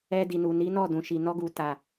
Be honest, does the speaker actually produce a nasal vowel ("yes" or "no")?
yes